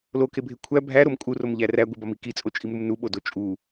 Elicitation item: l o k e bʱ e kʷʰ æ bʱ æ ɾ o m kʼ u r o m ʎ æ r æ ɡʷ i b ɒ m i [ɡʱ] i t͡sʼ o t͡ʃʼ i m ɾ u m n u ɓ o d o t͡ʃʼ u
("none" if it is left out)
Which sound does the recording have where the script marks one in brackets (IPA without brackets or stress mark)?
k